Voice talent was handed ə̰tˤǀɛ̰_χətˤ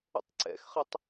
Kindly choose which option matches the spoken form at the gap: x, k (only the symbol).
x